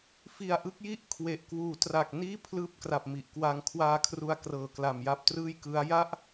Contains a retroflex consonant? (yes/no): no